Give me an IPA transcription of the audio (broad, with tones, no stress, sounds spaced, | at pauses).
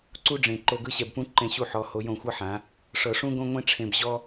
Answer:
ǀ u˦ ɖ͡ʐ ẽ˨ ǃ o˧ ɡ ɯ˦ ɕ ɛ˨ b p ũ˦ ǃ ẽ˧ ɕ u˧ ħ ɔ˨ h o˧ j õ˦˨ xʷ ɤ˦ ħ ã˨˦ | ʂ ɤ˨ ʂ ũ˦ ɡ õ˦ ŋʷ ẽ˦ ʈ͡ʂʰ ẽ˧ b ʑ ɔ˦